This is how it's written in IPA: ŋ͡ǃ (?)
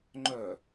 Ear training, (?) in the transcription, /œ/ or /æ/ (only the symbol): œ